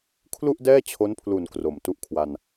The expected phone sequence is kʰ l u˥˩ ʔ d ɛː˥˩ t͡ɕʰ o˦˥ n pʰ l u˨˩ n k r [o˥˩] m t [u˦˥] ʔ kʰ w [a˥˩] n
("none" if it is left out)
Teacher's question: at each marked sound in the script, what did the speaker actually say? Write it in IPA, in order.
o˨˩, u˦˥, a˧

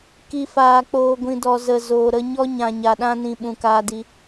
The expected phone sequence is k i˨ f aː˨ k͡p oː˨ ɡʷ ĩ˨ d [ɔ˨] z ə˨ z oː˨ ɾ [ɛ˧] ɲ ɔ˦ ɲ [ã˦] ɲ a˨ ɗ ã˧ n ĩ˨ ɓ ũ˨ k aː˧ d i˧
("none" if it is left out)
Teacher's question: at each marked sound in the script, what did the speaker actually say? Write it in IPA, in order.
ɔ˨, ə˧, ã˨

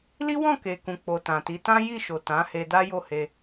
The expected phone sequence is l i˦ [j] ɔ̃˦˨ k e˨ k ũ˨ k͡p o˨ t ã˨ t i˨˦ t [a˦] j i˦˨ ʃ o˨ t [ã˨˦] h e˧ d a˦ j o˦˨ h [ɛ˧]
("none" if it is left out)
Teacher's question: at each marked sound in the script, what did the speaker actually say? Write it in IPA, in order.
w, ã˦, ã˨˦, e˧

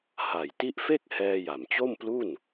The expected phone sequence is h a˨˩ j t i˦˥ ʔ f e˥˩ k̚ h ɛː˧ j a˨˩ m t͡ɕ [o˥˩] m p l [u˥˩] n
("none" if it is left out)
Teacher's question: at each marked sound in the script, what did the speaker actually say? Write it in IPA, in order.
o˥˩, u˥˩

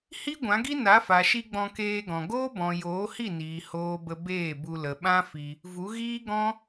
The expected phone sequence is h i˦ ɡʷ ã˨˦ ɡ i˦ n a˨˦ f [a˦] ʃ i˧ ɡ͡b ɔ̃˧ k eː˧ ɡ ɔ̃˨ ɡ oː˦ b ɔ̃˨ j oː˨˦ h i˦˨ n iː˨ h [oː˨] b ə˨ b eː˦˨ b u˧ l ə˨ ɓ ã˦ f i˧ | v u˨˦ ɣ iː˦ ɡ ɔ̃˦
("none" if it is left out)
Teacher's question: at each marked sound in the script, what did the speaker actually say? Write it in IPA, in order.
a˨, oː˨

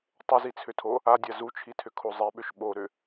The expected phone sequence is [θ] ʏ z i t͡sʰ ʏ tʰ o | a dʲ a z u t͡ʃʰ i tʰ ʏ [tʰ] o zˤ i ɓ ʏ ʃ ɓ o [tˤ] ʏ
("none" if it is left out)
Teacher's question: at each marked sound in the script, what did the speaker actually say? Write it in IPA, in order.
tˤ, kʰ, ɾ

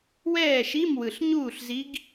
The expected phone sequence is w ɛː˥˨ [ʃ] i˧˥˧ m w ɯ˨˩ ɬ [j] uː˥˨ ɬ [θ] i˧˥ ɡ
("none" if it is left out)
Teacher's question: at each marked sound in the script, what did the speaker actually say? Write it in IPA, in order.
ʃ, ɲ, z

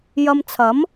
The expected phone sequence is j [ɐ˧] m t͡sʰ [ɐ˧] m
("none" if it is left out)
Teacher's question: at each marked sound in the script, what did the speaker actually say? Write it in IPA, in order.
ɐ˧, ɐ˨˥

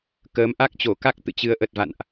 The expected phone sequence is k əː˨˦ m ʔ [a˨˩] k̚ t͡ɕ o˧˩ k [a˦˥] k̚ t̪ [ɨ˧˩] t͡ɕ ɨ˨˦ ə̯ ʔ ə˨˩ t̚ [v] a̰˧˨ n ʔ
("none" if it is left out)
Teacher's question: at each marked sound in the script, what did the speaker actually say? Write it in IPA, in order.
a˦˥, a˦˥, ɨ̰˧˨, v

